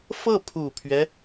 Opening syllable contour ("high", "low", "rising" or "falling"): falling